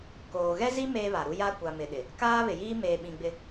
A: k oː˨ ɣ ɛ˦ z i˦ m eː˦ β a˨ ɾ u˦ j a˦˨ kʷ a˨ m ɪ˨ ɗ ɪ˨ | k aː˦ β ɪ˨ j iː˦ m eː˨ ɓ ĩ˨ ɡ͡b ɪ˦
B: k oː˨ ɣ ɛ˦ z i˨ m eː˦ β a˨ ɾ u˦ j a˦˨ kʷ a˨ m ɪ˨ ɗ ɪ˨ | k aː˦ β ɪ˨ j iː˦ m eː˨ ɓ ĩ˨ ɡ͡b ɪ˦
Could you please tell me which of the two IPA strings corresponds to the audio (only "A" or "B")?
A